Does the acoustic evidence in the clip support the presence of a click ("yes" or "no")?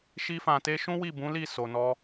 no